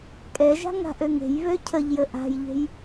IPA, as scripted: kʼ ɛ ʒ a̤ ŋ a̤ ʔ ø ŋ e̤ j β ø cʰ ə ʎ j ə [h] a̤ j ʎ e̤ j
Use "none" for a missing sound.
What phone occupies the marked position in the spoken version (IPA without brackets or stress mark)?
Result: ʔ